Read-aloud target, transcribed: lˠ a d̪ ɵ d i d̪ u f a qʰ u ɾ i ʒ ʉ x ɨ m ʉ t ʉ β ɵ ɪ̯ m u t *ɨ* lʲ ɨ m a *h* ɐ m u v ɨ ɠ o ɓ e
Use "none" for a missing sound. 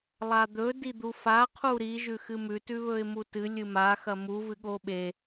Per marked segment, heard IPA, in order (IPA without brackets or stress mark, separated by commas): ɨ, x